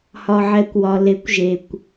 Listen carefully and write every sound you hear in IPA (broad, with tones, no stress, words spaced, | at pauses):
hɒ˩ʕɛ˩kʷwɒ˩ le˩˧kʷʒe˩kʷ